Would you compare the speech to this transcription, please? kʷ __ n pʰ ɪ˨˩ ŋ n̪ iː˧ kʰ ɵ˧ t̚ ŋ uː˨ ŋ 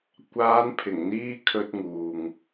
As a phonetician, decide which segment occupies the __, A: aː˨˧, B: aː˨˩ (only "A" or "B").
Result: A